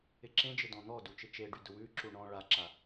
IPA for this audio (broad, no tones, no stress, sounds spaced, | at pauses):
ɪ ǁ ẽ d͡ʒ ɪ d ɔ̃ n̪ ɔ d u t͡ʃ ɪ t͡ʃ e ɖ y d ʊ w ʉ ǁ u ɳ ɔ̃ ɭ a ǁ a